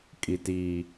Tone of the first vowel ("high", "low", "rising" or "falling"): high